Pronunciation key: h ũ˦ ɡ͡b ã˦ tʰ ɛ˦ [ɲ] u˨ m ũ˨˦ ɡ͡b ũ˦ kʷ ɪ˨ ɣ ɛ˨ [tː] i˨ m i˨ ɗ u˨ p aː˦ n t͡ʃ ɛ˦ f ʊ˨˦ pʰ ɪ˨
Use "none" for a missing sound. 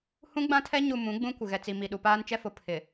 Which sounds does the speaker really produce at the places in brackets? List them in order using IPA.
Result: ɲ, t͡s

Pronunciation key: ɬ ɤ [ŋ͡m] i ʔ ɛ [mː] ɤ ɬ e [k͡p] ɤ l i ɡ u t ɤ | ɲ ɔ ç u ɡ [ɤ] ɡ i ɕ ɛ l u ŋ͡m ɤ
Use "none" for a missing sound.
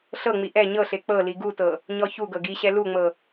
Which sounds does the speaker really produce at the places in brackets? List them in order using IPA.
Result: ŋ͡m, ɲ, k͡p, ɤ

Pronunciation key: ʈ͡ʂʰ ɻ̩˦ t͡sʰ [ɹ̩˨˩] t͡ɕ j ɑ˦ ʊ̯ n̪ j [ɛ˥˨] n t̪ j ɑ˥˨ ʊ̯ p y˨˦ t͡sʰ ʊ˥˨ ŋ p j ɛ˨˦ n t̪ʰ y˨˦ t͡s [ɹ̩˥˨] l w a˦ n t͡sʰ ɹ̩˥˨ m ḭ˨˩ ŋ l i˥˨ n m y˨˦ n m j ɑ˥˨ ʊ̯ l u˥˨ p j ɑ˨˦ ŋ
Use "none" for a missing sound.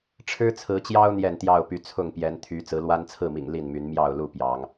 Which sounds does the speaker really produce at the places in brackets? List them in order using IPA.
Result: ɹ̩˨˦, ɛ˥˨, ɹ̩˨˦

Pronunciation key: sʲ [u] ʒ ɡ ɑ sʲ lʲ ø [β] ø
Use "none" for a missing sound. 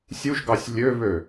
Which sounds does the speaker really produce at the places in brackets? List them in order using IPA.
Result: u, β

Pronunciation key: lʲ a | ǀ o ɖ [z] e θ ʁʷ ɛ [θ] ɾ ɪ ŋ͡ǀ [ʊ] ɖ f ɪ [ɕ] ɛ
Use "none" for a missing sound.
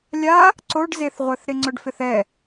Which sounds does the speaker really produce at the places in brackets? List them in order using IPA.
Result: z, θ, ʊ, θ

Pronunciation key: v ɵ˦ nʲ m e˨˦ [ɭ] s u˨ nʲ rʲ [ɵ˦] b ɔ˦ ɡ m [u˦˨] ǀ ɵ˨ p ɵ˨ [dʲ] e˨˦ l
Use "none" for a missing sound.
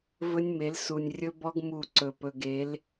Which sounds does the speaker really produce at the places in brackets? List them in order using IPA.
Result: l, ɵ˦, u˦˨, ɡ

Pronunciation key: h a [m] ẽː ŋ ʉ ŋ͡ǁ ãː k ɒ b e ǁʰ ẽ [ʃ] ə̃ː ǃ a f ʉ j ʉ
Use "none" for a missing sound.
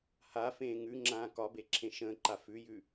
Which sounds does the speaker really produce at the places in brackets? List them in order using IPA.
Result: f, ʃ

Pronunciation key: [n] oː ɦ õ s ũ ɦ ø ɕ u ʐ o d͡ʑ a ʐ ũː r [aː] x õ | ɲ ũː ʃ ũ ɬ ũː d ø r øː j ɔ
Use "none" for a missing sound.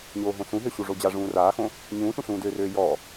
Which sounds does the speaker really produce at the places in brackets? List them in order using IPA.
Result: ɲ, aː

